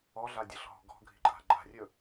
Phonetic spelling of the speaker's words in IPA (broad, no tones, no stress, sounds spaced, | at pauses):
ɔ ɮ a dʲ ɤ ɬ ɦ ɔ̤ ɡ ɔ̤ ɡʱ i̤ ǃʼ a̤ ɡ͡ǃ a̤ rʲ ɵ